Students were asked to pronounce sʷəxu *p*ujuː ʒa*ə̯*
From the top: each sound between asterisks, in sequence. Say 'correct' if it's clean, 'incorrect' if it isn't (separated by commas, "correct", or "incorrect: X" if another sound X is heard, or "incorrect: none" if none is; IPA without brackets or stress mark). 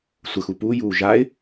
correct, incorrect: ɪ̯